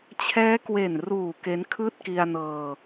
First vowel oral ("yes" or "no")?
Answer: yes